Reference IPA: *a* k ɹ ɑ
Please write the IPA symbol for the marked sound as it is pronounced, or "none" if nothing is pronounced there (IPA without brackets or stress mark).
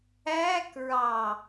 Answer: æ